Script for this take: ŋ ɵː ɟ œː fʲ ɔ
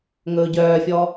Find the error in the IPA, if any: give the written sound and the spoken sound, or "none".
none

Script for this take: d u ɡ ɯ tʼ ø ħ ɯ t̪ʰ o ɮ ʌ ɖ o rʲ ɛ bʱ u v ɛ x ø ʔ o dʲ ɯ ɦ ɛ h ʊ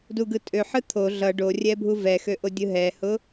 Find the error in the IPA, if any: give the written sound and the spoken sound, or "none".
none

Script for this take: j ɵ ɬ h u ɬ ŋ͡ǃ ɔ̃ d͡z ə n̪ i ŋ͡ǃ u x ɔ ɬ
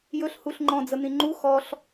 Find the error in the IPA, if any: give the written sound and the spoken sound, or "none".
i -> ĩ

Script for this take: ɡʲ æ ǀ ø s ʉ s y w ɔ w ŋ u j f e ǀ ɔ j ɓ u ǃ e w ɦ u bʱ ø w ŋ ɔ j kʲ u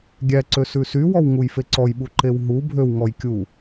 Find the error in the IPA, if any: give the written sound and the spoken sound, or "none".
none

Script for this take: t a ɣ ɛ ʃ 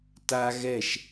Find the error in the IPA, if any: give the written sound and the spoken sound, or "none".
none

